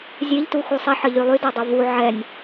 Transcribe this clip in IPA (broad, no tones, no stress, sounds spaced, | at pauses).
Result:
zʲ e ʎ t u x u sˤ ɛ ħ ə ʎ y lˠ y d ɛ dˤ o v u ʕ ɛ nʲ